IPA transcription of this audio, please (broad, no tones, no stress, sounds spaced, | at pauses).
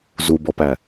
z u b ɔ p æ